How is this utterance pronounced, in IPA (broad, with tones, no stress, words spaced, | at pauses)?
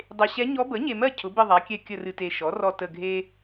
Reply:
dˤe˨ɕɛ˧˥ ɲɔ˧˥ bə˩˥ɲe˨mɜ˦˨ cʰʊ˩˥bɨ˦˨ ðˤa˩˥kʲɛ˦˨ kʲə˦˨rɨ˨te˨ ʃɔ˩˥rɔ˦˨ tə˦˨ɡʱe˥